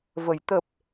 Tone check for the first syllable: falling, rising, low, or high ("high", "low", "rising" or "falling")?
low